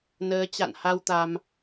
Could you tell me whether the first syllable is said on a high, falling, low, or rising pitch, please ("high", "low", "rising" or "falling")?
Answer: rising